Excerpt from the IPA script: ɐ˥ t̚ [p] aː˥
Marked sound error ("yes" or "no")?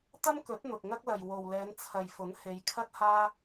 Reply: yes